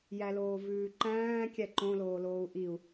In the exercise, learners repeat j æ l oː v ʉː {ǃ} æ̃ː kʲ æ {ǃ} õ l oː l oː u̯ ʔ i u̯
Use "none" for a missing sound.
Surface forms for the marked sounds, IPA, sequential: ǃ, ǃ

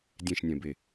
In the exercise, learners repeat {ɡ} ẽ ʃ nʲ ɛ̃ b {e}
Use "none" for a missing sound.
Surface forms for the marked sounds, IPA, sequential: dʲ, e

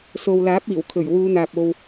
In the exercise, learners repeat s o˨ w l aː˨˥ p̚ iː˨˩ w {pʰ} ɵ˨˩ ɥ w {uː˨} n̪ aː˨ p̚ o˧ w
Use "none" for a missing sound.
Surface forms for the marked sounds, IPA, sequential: kʰ, uː˨˧

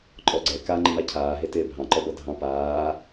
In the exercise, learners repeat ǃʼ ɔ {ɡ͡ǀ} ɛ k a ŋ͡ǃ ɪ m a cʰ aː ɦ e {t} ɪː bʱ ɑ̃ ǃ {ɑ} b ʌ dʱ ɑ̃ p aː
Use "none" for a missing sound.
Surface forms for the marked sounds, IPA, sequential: ɡ͡ǀ, t, ɔ

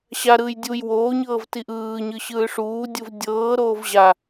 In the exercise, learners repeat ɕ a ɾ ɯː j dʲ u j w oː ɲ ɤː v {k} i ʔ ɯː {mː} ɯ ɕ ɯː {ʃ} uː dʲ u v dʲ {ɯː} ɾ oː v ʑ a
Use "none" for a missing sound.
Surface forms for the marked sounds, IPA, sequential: t, ɲ, ʂ, ɤː

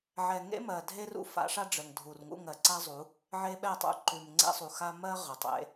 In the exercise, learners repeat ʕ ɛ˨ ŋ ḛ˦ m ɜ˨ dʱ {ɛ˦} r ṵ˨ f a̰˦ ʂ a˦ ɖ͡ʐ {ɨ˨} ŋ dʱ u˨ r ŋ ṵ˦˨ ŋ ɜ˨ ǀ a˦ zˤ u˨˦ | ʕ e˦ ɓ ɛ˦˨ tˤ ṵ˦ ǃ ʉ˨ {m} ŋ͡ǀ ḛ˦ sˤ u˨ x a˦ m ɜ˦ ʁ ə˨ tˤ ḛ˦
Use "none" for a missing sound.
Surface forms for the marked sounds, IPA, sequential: e˦, ə˨, m

